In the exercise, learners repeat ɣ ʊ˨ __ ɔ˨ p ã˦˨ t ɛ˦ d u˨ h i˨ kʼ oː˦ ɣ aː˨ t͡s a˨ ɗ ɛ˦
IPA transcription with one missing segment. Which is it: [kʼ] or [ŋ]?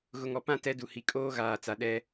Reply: ŋ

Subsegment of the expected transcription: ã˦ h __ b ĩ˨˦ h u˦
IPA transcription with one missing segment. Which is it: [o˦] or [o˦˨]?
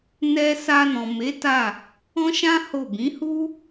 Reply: o˦˨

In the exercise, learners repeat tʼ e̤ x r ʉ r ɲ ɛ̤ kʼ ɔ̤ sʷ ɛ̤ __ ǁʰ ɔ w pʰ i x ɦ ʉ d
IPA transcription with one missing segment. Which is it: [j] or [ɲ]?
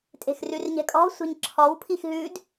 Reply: ɲ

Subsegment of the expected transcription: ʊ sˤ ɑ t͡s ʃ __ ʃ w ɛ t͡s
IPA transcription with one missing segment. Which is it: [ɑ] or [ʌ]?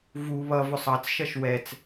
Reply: ʌ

